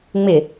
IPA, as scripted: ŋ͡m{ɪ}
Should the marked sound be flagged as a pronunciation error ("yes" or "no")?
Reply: no